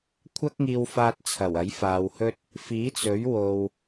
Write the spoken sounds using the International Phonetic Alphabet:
kʷʰ ɐ˥ k̚ ŋ iː˧ w f aː˧ t̚ t͡sʰ ɐ˨˩ w ɐ˨˥ j f aː˨˧ w h ɵ˥ t̚ | f iː˨˥ t͡s ɵ˨˥ ɥ w o˧ w

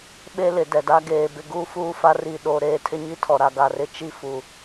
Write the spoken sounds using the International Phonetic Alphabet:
ɓ e˦ l ɪ˨ d ɛ˨ d a˦ ɡ eː˨ b ɪ˨ ɡ uː˦ f uː˦ f a˦ r i˨ ɗ o˨ ɾ eː˦˨ tʰ ɪ˦ ɲ i˦ tʰ ɔ˨ ɾ a˨ ɡ a˨ r ɪ˦˨ t͡ʃ i˦ f u˨

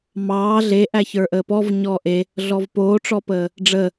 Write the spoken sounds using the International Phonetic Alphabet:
m ɑː ɮ e ʔ æ ç ə˞ ʔ əː p ɔ v ɲ ɔː ʔ e | ɮ ɔ v p oː ʈ͡ʂ ɔ p əː | ɖ͡ʐ ə

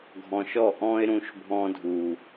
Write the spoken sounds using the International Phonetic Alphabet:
ɡʱ ɔ̃˨ ʃ ɔ˦˨ ʔ ɔ̃˦ ɪ̯ ɾ ũ˧ ʃ bʱ ɔ̃˧ dʱ u˨

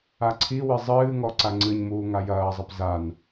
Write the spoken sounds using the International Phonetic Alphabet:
a ǀʰ i w ɨ zˤ ɨː ŋ ɔ ǀ a ŋ͡ǀ ɨ ɲ m uː ŋ a j ɐː zˤ ɐ p z a n

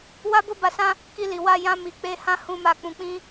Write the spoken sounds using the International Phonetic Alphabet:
w a˦ b o˦ b a˧ s ã˦ | k i˧ l i˨ w a˧ j ã˦ m i˧ k͡p e˦ h ã˦ h ũ˧ m a˧ k͡p ũ˧ k͡p ĩ˦

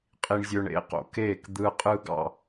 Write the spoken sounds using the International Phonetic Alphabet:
qʼ i˦ ɳ zʲ ø˦ ɳ ḛ˦˨ q o̰˨ k eː˦˨ k d̪ ɯː˦ qʼ ɯː˦ ɡ ɑ̰˧

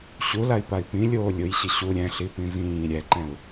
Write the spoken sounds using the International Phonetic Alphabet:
ɕ u l a i̯ p a i̯ p ĩ lʲ oː lʲ ʊ j ɕ ɪ ɕ u ɾʲ ɛ̃ ɬ i p ĩ v ĩː ɾʲ ɛ ǃ ɛ̃ u̯

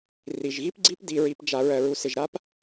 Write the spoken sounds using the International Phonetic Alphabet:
r i˨ ʒ ɣ i˦ p ɡ͡ǀ i˦ p d i˨ ɹ i˨ p d͡ʒ a˨ ɹ ɜ˨ ɹ u˨ s ɪ˨ ʒ ɾ a˦ p

